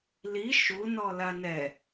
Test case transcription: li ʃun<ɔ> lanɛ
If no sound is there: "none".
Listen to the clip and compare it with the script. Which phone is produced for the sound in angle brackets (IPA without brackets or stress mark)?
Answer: ɔ